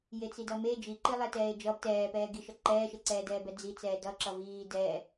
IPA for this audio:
j e t͡s i d ʌ m e d͡ʒ i ǃ i lˠ ɛ t ɛː e̯ d͡ʒ ʌ b t ɛː p ɛː ɡ i ʃ ʌ ǃ ɛː ʃ e ǀ ɛː d ɛː b ɛ d͡z i t͡s ɛː d ʌ ǁ ʌ v iː d ɛ

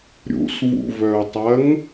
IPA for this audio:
ɾʲ ṵ s v ṵ v œ ʊ̯ tˤ ɐ ŋ

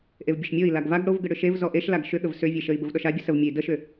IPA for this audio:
ʔ e v bʲ ə ʃ mʲ o i̯ l a ɡ v a ɡ ɽ o v ɡ ə ɽ ʏ ʃ e v z ɔ ʔ e ʃ l a ɡ ʃ ʏ ɠ ə v s ʏ vʲ e ʃ ə i̯ b ə v ɗ ɔ ʃ a bʲ ə s ə v mʲ e i̯ d ə ʃ ʏ

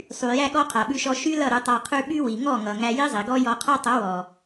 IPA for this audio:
sˤ y˨ j æ˧ ɠ ɔ˧ qʰ a˨ ɓ ʉ˧ ʃ ɔ˧ ʃ y˦ l ʌ˦˨ ɾ ʉ˧ tˤ a˧ qʰ ʉ˧ ɓ y˦ w i˨ ŋ ɔ˦˨ ŋ ʌ˨ ŋ æ˧ j i˦ zˤ i˨ ɡ ɔ˦ j ɔ˧ qʰ a˦ tˤ ʌ˨˦ w ɔ˨

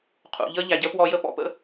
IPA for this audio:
qʰ ṵ˨ ʎ əː˦ ʎ æ˨ ɟ əː˦ p w ɔ˧ j ə˦ p ɔ̰˦ p ə̰˦

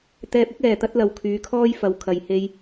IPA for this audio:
t̪ ɛː˧ p̚ ɪ˥ k̚ ɛː˨˩ t̪ ɐ˥ t̚ l ɐ˨ w kʰ yː˨˧ kʰ ɔː˥ j f ɐ˧ w kʰ ɐ˨ j h e˧ j

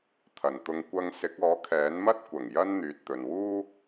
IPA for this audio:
t̪ʰ ɐ˨ n t̪ ʊ˧ ŋ kʷ ɐ˧ ŋ s ɪ˨˥ k̚ ɔː˨˥ kʰ ɛː˨˥ n m ɐ˥ t̚ kʷ ɐ˨˩ ŋ j ɐ˥ n n̪ yː˨ t̚ t̪ ɵ˨ n w uː˥

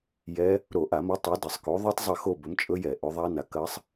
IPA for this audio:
j ɛ˦˥ | ɾ o˧˩˧ ʔ a˧˩˧ m ɐ˨˥ tˤ o˨˥ d ɐ˧˩˧ sˤ k o˨˥ ðˤ ɵ˦˥ tˤ zˤ ɐ˦˨ x o˦˨ b ɵ˨˥ m t͡ʃʼ ɵ˦˥ j ɛ˧˩˧ ʔ ɵ˨˥ ðˤ a˦˥ n a˨˥ k ɐ˦˥ sˤ

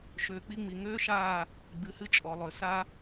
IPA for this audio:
ʃ øː˨ k͡p i˦ ŋ͡m i˨ ŋ øː˦ ʃ aː˦˨ | ɡ͡b ɨ˨ h ɨ˦ t͡ʃʼ ɔ˨ lˠ ø˨ s a˦

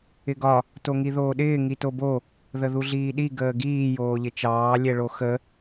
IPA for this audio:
ɪ ɡ ɒ | t o ŋ i ð oː ɗ ɪː ŋ i t o b o | ð ə ð u ɮ iː ɗ i ɡ əː ɡ iː j oː ʎ ɪ t͡ʃ ɑː lʲ ɛ ɭ o x ə

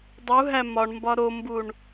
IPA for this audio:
dˤ u ɦ æ m ɒ ɳ m b ɒ ɾ o m b u ɳ

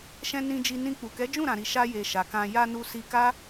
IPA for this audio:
ʃ ɛ̃˧ n ĩ˧ d͡ʒ i˧ n ĩ˧ k͡p u˨ k ɛ˨˦ d͡ʒ ũ˦˨ ɾ ã˨ ɾ i˨ ʃ a˧ j e˨ ʃ a˨ k ã˧ j a˧ n u˧ s i˧ k a˦

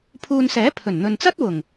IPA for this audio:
pʰ uː˧ n s ɛː˨˥ pʰ ɵ˨˩ n n̪ ɵ˨ n t͡s ɐ˥ t̚ w ʊ˨˩ ŋ

